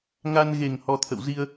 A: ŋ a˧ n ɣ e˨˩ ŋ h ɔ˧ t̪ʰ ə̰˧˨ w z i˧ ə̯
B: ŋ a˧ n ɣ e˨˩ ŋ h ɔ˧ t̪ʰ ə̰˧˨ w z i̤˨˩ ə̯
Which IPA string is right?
A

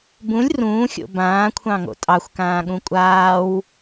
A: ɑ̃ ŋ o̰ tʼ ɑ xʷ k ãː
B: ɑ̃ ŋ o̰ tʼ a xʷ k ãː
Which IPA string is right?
A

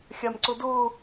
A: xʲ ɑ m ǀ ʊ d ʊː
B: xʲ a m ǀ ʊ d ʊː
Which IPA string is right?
B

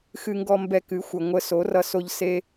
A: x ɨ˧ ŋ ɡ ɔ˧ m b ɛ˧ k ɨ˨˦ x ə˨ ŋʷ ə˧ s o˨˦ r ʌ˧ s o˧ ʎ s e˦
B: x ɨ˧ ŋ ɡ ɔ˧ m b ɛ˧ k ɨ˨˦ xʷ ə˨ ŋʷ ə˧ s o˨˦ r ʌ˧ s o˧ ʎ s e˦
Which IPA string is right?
B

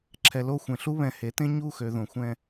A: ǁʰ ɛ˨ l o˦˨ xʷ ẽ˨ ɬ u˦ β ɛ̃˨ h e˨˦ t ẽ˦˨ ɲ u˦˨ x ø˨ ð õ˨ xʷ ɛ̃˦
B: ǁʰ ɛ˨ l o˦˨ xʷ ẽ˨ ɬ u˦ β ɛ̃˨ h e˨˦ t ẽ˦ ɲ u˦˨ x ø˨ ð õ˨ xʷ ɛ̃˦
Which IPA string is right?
B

